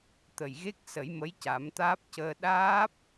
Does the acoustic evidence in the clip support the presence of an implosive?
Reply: yes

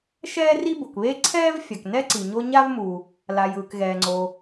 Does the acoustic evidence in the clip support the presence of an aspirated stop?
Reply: yes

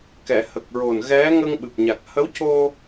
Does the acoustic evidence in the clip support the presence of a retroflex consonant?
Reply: no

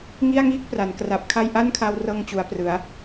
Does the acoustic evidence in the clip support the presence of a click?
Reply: no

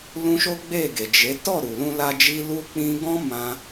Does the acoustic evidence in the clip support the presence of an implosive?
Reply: no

